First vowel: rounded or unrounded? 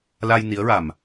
unrounded